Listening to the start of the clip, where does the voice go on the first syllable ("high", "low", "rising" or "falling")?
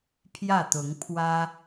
falling